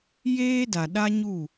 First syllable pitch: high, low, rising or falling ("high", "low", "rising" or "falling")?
high